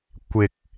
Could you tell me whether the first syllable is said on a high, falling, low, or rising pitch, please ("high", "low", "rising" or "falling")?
low